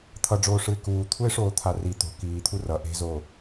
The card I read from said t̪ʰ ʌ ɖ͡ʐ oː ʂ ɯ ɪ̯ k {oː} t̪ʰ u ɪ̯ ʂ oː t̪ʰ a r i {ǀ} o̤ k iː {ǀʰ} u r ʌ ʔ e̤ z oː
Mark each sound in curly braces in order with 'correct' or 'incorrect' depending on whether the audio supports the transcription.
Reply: incorrect: uː, incorrect: t̪, incorrect: t̪ʰ

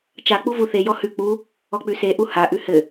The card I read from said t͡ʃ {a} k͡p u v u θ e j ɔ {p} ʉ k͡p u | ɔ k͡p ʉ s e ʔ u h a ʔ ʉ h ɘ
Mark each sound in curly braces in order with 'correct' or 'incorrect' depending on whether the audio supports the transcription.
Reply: correct, incorrect: h

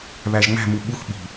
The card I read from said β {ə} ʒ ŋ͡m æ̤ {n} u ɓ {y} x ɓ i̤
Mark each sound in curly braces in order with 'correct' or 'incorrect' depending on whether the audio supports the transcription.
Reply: incorrect: æ, incorrect: m, incorrect: u

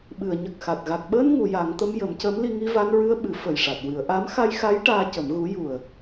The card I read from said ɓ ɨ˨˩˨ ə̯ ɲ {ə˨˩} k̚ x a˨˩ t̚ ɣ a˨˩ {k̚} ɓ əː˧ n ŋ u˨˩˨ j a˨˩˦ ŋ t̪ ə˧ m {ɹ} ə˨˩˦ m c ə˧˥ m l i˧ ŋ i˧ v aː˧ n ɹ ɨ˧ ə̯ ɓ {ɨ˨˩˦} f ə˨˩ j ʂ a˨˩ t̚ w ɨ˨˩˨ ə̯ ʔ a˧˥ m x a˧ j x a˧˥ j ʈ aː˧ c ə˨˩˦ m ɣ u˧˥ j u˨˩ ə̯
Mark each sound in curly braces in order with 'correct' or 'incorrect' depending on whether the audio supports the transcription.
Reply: correct, correct, incorrect: j, correct

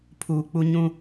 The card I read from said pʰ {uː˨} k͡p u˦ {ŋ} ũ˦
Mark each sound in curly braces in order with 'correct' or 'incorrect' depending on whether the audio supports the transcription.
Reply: correct, incorrect: ɲ

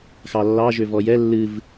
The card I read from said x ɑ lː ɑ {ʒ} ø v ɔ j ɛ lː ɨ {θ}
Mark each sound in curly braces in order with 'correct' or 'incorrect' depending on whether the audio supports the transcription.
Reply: correct, incorrect: v

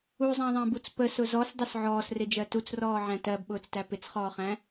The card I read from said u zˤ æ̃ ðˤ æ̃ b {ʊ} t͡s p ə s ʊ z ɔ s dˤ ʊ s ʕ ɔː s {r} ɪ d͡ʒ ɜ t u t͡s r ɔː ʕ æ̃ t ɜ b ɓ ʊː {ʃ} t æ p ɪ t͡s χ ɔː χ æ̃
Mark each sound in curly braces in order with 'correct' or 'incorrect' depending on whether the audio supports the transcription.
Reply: incorrect: u, correct, incorrect: t͡s

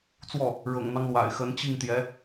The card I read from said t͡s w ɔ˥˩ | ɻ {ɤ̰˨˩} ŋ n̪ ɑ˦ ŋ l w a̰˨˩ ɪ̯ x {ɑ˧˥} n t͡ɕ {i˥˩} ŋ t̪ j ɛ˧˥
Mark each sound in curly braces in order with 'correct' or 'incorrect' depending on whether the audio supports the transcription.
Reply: correct, incorrect: ə˧˥, correct

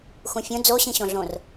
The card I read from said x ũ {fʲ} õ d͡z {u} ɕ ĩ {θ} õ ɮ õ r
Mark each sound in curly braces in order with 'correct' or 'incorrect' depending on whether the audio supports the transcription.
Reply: correct, incorrect: o, incorrect: ɕ

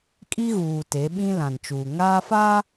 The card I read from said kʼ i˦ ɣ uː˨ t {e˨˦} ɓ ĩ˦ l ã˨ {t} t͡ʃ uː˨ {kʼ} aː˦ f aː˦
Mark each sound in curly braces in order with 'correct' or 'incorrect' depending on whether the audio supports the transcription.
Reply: correct, incorrect: n, incorrect: ŋ

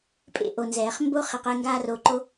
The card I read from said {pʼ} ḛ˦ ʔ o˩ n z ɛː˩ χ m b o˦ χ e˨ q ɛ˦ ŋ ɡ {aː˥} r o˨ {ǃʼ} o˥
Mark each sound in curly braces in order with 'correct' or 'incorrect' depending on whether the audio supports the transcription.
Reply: correct, correct, incorrect: ǃ

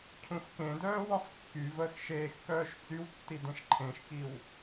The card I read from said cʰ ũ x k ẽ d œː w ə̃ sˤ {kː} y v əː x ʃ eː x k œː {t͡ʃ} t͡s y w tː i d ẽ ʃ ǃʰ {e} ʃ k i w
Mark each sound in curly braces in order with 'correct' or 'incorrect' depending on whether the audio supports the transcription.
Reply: correct, incorrect: ʃ, incorrect: ẽ

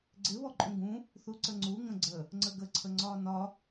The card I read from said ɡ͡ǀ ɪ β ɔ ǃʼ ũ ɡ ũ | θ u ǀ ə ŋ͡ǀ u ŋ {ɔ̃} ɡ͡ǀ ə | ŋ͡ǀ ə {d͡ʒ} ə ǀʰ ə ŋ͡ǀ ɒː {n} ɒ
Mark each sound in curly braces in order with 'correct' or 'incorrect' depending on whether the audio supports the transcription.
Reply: incorrect: ə̃, incorrect: ɡ, correct

